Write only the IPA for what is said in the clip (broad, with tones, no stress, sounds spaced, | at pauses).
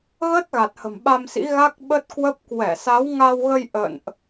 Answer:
ɣ ə˦˥ t̚ ɣ a˨˩ t̚ h ə̤˨˩ m ɓ a˧ m s ḭ˧˥ ɣ a˦˥ k̚ ɓ ə˦˥ t̚ k w ə˦˥ p̚ k w ɛ˧˩ s a˨˦ w ŋ a˧ w ɣ ə˧ j ʔ ə̰˧˨ n ʔ